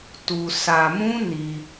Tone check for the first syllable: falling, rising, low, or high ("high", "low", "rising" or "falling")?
low